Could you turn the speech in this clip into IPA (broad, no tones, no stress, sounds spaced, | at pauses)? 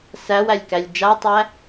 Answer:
s æ w æ lʲ k æ lʲ d͡ʒ a tˤ æ